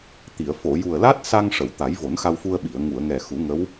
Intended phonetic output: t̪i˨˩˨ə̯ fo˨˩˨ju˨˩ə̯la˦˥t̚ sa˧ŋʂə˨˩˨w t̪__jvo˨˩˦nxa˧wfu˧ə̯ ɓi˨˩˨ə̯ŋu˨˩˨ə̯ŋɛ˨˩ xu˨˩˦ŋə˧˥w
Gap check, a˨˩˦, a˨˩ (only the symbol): a˨˩˦